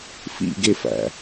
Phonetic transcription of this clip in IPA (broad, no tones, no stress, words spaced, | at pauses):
fḭɡe fæ̰